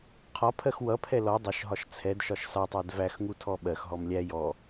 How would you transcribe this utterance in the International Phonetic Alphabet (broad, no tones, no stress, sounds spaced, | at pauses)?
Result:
qʰ ɒ pʰ ɜ x w ʌ pʰ ɛ l ɔ dˤ ʊ ʃ ɦ ɒ ʃ t͡sʰ ɛ d ʃ ɒ ʃ s ɑ tˤ ɜ d v æ x ŋ u tʰ ɔ ɓ ɜ x ɦ ɔ m lʲ æ j ɔ